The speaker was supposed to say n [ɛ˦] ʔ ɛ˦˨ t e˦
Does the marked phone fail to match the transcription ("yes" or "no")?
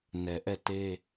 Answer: yes